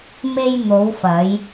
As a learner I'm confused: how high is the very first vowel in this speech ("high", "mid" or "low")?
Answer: mid